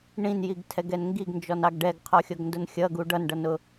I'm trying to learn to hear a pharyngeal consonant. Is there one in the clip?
no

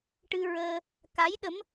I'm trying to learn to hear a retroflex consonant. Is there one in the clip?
yes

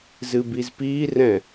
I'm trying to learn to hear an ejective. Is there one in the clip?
no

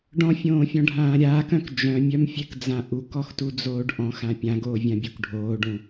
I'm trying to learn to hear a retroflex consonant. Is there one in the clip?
yes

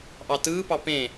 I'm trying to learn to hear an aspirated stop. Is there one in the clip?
no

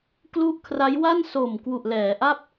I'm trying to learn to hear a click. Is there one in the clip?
no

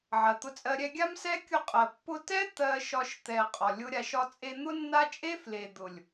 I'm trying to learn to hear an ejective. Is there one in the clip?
yes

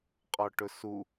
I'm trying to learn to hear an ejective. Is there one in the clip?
yes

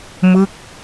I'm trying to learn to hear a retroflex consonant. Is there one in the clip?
no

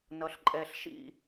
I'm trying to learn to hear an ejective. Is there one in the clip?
yes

